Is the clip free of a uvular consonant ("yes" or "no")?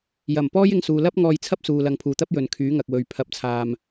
yes